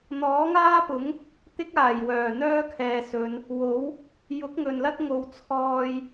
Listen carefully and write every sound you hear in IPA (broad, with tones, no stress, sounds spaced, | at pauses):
n̪ ɔː˨˥ ŋ aː˥ p ʊ˨˥ ŋ | t̪ ɪ˥ k̚ aː˨˩ j w œː˨˩ n̪ œː˥ kʰ ɛː˨ s ɵ˨˧ n | w o˨˥ w | j ʊ˨˥ k̚ ŋ ɵ˨ n l ɐ˥ t̚ ŋ o˨ w t͡sʰ ɔː˧ j